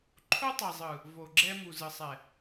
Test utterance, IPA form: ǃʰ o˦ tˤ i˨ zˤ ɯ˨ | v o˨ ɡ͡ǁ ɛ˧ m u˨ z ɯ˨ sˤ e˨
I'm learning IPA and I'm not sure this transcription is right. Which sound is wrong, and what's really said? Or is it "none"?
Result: e˨ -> ɛ˨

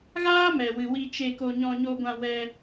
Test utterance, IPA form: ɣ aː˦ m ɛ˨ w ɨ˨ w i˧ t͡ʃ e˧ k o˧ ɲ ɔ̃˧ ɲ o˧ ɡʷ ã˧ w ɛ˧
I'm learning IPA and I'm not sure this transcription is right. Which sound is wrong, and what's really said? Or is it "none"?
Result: none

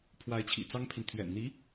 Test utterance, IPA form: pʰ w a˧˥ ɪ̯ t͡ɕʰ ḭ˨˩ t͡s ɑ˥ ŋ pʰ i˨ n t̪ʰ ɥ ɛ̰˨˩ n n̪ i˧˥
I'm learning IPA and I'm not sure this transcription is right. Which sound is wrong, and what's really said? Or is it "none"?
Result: none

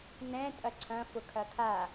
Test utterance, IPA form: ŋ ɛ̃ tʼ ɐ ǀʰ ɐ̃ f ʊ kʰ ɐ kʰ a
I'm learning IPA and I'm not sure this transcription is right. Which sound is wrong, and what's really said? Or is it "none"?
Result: ŋ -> n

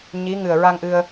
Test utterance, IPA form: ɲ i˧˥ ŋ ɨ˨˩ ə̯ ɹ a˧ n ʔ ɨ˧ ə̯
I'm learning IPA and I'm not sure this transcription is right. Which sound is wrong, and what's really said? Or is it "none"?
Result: n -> ŋ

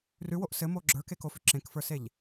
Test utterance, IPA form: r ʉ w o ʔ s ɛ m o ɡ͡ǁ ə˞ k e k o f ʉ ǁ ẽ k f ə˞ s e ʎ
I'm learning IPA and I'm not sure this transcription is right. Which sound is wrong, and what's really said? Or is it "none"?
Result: ɛ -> ɘ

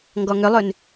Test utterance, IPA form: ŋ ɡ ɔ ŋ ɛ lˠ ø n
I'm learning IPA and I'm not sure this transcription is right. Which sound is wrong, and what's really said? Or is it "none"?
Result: ɛ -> ʏ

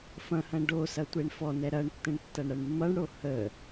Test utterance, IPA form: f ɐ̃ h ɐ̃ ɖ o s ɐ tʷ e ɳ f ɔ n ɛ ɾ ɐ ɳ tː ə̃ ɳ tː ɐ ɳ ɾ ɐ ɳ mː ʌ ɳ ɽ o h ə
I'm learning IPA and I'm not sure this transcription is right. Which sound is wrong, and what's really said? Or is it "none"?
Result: none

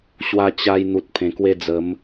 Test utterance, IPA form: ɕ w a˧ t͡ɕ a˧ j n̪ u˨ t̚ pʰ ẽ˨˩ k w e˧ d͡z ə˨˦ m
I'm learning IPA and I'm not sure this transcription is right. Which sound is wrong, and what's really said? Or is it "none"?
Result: none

